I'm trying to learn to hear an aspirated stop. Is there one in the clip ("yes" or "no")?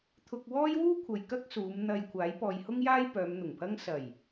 yes